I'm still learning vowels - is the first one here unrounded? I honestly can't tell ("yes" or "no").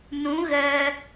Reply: no